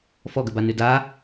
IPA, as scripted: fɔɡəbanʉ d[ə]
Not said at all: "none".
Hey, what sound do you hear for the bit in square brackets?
a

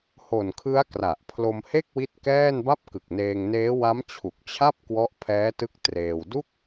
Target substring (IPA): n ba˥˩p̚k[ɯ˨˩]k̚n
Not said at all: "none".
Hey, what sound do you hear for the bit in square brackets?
ɯ˨˩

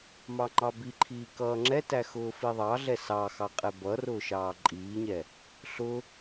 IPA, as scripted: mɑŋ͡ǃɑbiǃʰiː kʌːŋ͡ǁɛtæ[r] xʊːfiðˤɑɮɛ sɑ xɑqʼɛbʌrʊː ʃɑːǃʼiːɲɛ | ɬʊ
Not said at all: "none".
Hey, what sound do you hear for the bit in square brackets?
none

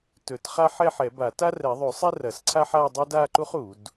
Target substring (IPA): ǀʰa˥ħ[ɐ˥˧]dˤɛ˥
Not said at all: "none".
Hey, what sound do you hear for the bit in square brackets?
a˥˧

